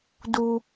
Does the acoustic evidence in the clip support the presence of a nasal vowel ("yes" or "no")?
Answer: no